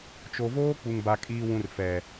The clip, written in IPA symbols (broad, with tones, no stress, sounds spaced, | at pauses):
t͡ʃ o˨ v oː˦ k͡p u˨ ŋ b a˨ kʼ iː˨ w ũ˨ r f ɛ˨